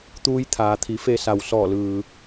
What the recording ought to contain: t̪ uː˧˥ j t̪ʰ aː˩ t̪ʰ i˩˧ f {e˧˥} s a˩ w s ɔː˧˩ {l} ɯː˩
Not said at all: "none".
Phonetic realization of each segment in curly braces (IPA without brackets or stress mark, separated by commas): e˧, l